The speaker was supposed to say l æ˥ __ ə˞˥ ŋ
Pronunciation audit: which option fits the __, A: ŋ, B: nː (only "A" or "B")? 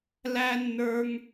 B